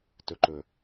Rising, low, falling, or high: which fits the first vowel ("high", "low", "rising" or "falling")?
low